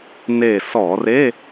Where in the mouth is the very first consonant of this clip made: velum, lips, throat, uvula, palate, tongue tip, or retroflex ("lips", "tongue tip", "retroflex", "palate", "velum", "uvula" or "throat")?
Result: tongue tip